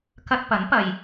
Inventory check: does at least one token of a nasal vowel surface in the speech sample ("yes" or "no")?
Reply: no